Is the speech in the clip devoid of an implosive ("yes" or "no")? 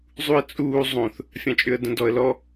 yes